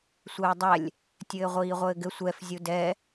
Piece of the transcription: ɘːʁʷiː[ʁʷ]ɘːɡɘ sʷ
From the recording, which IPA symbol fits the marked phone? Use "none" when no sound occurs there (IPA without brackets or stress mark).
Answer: ʁʷ